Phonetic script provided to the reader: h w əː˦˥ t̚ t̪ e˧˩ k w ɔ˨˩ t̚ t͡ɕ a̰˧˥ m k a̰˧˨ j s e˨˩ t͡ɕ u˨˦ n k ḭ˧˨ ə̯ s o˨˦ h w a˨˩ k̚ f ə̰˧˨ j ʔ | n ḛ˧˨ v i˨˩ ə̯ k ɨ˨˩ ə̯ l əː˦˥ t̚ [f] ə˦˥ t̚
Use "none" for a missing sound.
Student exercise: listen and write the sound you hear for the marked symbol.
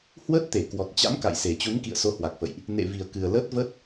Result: v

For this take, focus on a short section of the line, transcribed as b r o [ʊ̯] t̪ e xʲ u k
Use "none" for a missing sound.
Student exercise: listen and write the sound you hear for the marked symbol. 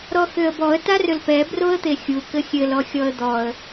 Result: ə̯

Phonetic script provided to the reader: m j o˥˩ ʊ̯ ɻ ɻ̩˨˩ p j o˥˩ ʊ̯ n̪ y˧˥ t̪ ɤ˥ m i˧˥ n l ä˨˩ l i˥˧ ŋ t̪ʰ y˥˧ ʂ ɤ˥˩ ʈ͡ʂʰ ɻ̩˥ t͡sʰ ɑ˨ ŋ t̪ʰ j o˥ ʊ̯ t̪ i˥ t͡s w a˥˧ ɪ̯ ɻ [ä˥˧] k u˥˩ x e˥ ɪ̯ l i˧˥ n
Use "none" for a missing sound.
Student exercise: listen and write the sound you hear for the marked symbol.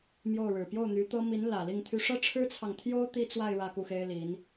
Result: ä˥˧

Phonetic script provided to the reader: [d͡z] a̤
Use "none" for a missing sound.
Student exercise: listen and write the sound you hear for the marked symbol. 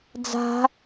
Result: d͡z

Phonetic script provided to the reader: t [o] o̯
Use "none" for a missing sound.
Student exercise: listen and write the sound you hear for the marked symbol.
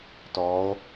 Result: ɔ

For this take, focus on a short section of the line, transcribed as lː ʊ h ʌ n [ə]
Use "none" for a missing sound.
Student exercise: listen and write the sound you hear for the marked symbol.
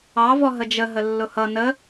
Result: ə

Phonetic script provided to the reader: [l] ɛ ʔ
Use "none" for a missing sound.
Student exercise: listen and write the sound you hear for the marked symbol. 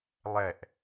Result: lˠ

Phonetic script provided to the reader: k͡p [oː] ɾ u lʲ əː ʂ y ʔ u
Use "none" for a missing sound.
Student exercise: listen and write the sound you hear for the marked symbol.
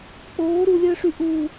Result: oː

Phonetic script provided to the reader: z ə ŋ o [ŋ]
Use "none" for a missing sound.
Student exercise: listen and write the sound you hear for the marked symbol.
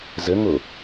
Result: none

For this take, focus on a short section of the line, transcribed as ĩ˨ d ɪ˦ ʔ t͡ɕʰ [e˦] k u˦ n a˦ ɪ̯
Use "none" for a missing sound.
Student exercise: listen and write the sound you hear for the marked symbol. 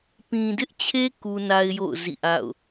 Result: e˦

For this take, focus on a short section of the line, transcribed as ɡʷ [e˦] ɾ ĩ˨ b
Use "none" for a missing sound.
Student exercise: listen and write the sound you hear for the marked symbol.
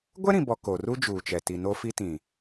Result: ɛ˦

